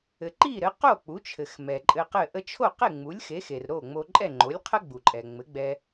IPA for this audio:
ɘ˩ ǃ i˥˩ ɾ ɘ˩˥ q o˥˩ k͡p u˩˥ t͡ʃʰ ɘ˩ x m ɛ˩ ǃʼ ɘ˧ q ɘ˥˩ ʔ ə˧ t͡ʃʰ o˥˩ q e˥˩ ŋ͡m u˩˥ lʲ x e˩˥ x e˩ r ɾ o˥˩ ŋ͡m o˧ ǃʼ ɛ˥˩ ŋ͡ǃ o˩˥ lʲ qʰ ə˥ ɡ͡b u˩ ǃʼ ɛ˩ ŋ͡m ɘ˩˥ ɡ͡b ɛ˧

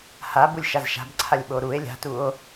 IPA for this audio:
h a b u lʲ ʃ a z ʃ a̤ b ǀʰ a lʲ ɓ o ɾ u e̯ lʲ a̤ t u o̯

